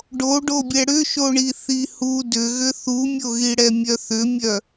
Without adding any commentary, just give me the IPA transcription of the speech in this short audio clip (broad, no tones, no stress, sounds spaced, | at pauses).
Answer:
ɖ o ɖ o bʲ ɛ ɽ ʏ ʃ o ɳ i θ i h u d ʏ ɣ ʏ θ u mʲ o ɣ i ɽ ɛ mʲ œ θ ʏ mʲ œ